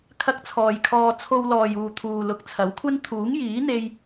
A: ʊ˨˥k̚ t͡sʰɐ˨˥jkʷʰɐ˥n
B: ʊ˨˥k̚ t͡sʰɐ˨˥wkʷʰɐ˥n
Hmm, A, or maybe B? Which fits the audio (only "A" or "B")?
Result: B